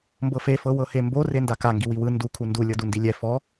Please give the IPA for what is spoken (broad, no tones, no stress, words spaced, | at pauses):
mbɤfe fɤwɤhembo rendaka ŋɡiwiwɯ ndu kʰundu lʲɤdundilʲɛ fɔ